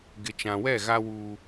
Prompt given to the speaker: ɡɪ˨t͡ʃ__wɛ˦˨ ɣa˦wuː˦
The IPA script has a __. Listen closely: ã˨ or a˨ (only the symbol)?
ã˨